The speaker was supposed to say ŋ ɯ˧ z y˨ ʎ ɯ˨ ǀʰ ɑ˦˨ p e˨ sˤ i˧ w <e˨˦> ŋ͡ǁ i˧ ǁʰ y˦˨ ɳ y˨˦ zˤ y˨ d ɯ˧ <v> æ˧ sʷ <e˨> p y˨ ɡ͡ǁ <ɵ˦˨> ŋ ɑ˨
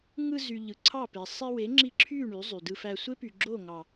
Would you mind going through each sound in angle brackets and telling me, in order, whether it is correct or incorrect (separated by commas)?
correct, incorrect, incorrect, incorrect